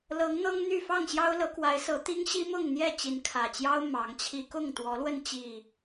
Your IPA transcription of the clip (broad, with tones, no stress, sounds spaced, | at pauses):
l ɤ˨˦ ŋ n̪ ɤ˦ ŋ n̪ y˥˨ f ɑ˥˨ ŋ ɕ j ɑ˦ ʊ̯ l ɤ˨˦ k w a˨˦ ɪ̯ s ɤ˨˦ t̪ i˦ ŋ ɕ i˦ m ʊ˥˨ ŋ n̪ j ɛ˥˨ t͡ɕ i˨˦ n kʰ ä˨˩ t͡ɕ j ɑ˦ ʊ̯ m ɑ˨˦ ŋ t͡ɕʰ i˦ k ʊ˥˨ ŋ t̪ w ɔ˨˦ l w ə˧ n t͡ɕ i˨˩